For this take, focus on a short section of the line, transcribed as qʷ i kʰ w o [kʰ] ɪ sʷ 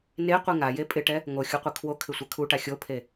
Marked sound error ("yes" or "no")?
no